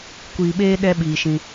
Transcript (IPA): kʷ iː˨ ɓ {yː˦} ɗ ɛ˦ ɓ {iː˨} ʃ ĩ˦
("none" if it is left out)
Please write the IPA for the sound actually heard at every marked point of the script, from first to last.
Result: eː˦, iː˨

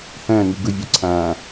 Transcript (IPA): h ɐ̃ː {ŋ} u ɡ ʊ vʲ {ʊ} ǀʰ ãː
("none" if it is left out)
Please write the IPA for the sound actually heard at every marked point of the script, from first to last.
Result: ŋ, ʊ

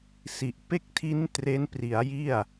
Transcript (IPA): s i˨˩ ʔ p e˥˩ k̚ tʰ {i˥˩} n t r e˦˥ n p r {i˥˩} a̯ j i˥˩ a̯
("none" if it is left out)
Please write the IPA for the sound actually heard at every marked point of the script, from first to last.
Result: i˦˥, i˩˦

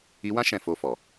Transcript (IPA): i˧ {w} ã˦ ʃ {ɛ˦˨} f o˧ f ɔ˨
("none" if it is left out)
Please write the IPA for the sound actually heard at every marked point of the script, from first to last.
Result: w, ɛ̃˦˨

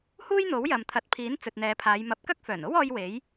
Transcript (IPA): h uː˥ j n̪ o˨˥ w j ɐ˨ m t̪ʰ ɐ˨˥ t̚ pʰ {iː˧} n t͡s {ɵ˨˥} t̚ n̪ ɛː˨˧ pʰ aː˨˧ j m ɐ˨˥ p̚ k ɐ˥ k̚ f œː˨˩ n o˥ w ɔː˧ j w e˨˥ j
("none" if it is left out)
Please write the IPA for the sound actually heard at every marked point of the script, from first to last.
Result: iː˨˥, ɵ˨

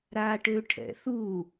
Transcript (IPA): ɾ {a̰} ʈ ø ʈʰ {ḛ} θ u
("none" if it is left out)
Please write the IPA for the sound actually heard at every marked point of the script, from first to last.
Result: a, ɛ̰

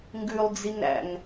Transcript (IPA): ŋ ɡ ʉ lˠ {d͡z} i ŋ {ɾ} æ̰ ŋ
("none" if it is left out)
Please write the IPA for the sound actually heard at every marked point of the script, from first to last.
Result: d͡z, ɾ

